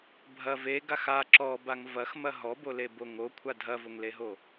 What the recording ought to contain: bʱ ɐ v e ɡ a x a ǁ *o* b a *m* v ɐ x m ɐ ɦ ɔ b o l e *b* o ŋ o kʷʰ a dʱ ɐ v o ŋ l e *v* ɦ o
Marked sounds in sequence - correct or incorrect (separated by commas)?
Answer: incorrect, incorrect, correct, incorrect